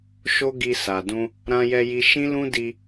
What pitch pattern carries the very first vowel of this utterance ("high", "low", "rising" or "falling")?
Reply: high